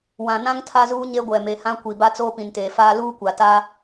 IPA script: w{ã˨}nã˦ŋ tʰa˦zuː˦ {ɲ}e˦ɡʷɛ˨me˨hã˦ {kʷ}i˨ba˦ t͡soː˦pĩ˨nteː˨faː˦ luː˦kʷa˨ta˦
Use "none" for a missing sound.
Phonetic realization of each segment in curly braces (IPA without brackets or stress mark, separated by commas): ã˨, ɲ, kʷ